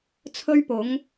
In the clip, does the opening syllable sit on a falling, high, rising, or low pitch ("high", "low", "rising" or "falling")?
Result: high